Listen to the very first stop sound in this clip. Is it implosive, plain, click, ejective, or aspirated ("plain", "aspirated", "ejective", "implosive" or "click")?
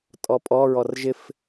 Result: ejective